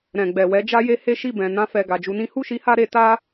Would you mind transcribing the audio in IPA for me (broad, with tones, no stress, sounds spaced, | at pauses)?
ɾ ɛ̃˨ ɡ͡b ɛ˨ w ɛ˨˦ d͡ʒ a˧ j e˧ h e˦ ʃ i˦˨ b ɛ̃˨ n ã˧ f ɛ˨ ɡ a˨ d͡ʒ u˧ n ĩ˦ h u˦˨ ʃ i˧ h a˧ ɾ e˧ t a˦